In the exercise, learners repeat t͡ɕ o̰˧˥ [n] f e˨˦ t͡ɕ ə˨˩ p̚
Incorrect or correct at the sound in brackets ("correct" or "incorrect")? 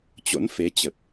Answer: correct